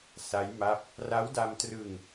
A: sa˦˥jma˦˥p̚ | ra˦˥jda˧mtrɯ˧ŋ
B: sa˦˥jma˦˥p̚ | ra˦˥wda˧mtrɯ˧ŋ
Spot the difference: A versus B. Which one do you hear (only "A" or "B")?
B